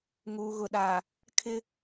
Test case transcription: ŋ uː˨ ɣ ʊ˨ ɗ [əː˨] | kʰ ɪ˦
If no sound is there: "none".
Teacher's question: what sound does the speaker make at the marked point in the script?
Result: aː˨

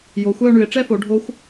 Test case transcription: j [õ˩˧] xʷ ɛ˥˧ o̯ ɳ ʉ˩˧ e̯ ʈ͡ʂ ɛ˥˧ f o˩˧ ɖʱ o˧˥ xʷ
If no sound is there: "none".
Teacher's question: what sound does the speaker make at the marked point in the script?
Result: o˩˧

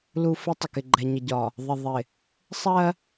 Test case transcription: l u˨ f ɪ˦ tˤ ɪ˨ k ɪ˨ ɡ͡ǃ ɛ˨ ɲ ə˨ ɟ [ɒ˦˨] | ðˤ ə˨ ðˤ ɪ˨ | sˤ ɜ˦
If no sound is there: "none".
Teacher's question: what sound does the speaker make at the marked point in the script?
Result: ɒ˨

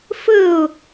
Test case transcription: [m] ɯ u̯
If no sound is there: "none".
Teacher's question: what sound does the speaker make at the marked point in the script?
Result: f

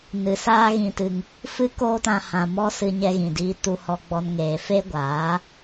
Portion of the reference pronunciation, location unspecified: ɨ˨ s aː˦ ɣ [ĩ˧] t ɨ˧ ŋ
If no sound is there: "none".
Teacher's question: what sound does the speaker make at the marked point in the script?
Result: ĩ˧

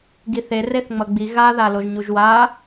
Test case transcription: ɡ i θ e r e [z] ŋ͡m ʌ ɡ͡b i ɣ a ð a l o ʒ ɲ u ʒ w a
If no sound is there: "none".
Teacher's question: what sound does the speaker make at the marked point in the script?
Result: θ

